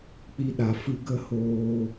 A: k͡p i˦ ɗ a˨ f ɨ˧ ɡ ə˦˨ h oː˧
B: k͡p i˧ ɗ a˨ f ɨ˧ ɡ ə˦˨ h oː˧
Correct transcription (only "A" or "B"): B